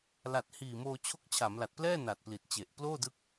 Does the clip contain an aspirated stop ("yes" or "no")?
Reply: yes